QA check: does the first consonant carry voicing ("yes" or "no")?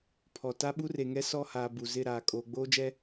no